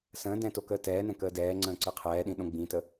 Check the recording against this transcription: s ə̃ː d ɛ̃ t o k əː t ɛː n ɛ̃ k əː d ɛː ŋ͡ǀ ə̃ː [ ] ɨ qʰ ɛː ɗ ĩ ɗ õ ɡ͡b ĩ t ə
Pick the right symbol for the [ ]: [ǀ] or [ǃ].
ǀ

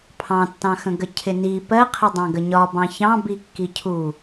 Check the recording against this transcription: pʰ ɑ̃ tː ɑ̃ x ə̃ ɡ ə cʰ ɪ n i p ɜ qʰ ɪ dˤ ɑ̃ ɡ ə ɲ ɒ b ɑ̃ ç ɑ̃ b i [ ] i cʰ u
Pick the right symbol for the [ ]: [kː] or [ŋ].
kː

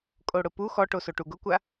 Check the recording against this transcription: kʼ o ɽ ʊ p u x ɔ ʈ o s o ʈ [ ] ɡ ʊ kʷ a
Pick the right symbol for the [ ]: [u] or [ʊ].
u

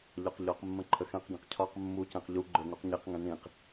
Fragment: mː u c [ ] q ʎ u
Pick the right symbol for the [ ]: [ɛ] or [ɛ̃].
ɛ̃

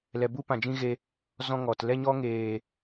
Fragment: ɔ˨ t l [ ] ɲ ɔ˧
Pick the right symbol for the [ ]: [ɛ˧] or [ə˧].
ɛ˧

